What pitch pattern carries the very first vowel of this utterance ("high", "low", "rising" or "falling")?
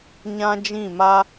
high